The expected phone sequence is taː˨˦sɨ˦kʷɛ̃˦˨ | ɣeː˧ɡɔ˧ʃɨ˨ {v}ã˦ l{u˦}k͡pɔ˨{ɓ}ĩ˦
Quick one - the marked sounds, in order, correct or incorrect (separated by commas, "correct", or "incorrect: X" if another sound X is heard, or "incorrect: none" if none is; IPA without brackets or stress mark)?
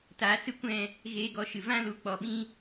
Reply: correct, incorrect: u˨˦, correct